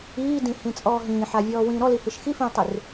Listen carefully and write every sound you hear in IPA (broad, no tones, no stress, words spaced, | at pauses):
iːdĩhĩ t͡sʼɔːɦĩːħavʲɔː wĩːɾɔlihiʃ xifĩːtˤir